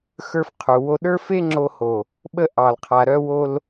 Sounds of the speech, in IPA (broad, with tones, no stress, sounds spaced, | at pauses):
x ə˞˧ f qʰ u˨ w o˧ ɗ ə˞˦ f e˦ ŋ͡ǁ o˧ h o˨ | ɓ ə˧ ʔ ɑ˨ l qʰ a˨ ɾ œ˧ w o˧ l